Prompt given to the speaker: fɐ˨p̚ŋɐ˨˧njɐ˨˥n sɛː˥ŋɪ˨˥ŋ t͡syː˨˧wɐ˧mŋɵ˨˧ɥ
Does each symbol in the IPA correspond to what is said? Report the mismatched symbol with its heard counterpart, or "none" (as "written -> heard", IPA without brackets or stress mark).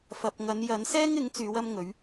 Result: none